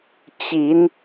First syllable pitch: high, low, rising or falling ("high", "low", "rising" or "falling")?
rising